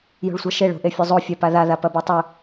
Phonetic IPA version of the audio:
j o̤ ɭ sʷ a ʃ e ɭ o̤ ʔ e fʲ o zˤ o fʲ a p a ð a ð a p ɐ b o tˤ ɵ

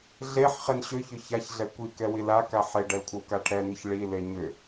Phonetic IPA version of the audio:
ɮ e ħ χ e n ɕ ʏ ç ʏ ç a ç ɮ ɛ kʷ i k ɛ w i l a k a ħ e ɖ ɛ l kʷʰ ə w k a ʈʰ ɛ n i ç ɭ i l e ɲ ʏ

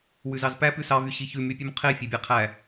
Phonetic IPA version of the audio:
w ʉ z ɑ z p æ p ʉ s ɑ v y ɕ i ç ʉ m y pʲ ʉ m qʰ e fʲ œ bʲ æ qʰ æ

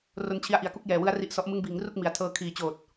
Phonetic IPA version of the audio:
r o˧ n t͡ɕʰ i˧ a̯ ʔ i˨˩ a̯ k u˦˥ k̚ j ɛː˨˩ w ɯ˦˥ a̯ r i˦˥ ʔ s ɔ˦˥ ʔ m ɯ˦˥ ŋ b iː˩˦ ŋ r u˥˩ k̚ m i˩˦ a̯ tʰ ɤː˧ kʰ iː˨˩ t͡ɕ oː˨˩ t̚

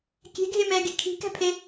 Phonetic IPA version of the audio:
kʲ ɛ̤ ɡʱ e m ɛː ɡ e kʰ i̤ k æ̤ pʰ e

